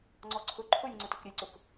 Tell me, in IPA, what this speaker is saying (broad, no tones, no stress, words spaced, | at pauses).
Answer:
ŋ͡ǀɔǀʰʊ ǃʰʊlʲ ŋ͡ǀʊtʊkɾʲɘj ǀʊk